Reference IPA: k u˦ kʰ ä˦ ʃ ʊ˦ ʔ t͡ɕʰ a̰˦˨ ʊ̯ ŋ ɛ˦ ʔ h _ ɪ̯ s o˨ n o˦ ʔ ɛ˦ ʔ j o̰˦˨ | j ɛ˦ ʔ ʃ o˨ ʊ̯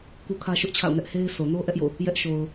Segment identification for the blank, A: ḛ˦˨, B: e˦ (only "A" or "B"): B